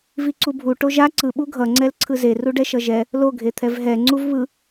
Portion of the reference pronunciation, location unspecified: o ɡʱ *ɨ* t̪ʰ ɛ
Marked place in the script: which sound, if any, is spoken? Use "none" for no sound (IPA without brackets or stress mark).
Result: e